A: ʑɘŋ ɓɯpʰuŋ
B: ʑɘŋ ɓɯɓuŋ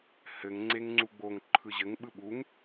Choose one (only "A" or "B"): B